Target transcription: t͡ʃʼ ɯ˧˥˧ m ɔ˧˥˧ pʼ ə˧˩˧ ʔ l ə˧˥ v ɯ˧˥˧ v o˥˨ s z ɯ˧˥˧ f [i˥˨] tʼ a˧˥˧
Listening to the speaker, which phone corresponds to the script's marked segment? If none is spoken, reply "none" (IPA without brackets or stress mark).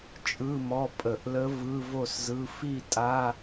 i˥˨